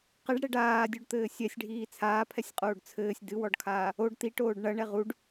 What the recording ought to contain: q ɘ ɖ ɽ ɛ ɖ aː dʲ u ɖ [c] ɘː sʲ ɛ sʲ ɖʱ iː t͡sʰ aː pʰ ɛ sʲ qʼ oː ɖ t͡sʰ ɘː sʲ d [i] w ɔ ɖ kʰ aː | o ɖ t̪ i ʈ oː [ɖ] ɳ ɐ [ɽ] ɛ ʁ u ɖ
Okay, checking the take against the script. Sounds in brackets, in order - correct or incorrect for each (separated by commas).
incorrect, incorrect, correct, incorrect